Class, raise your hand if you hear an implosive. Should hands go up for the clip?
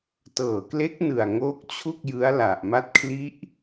no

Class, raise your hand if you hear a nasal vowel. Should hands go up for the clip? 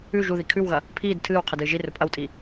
no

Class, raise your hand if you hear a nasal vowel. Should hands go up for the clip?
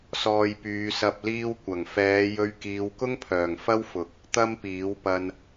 no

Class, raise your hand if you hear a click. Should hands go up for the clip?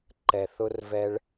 yes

